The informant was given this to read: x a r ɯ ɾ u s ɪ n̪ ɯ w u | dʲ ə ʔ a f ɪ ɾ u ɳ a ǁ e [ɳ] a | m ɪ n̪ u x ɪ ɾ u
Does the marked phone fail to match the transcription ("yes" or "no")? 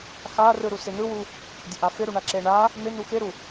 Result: no